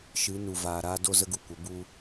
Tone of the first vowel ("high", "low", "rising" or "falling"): rising